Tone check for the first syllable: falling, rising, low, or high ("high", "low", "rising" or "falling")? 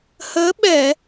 rising